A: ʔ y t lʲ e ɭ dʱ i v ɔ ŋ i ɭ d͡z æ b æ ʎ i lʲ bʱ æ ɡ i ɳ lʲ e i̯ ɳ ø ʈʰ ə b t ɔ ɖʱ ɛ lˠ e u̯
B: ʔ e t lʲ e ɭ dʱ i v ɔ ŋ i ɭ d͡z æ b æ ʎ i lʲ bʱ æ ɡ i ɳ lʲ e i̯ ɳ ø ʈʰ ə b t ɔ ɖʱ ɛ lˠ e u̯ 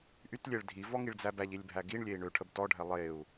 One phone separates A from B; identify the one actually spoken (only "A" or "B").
A